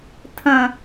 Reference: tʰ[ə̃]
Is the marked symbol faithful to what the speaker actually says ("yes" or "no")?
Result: yes